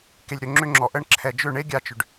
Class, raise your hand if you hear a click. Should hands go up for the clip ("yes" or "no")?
yes